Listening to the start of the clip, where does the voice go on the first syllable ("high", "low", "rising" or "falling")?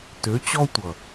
rising